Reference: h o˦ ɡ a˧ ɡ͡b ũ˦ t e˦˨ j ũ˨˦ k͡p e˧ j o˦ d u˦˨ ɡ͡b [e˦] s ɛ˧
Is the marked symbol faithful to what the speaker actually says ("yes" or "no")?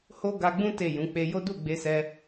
no